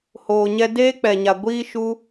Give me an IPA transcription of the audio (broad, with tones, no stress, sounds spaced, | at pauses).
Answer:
h oː˨ ɲ ɛ˧ d eː˦ k͡p ɛ˨ ɲ a˨ ɡʷ iː˦ ʃ u˦